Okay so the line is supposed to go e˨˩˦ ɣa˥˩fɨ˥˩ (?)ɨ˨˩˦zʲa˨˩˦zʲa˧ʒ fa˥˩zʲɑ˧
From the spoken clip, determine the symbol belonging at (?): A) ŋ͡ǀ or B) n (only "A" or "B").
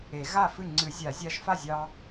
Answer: A